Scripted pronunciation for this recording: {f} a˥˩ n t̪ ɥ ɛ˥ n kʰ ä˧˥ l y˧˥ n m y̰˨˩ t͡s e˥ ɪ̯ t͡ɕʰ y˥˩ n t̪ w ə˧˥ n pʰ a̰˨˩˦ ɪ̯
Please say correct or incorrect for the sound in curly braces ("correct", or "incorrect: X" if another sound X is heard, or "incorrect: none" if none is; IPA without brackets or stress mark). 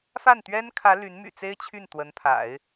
correct